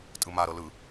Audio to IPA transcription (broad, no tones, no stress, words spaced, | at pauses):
tʼɯma ɾɤlɯ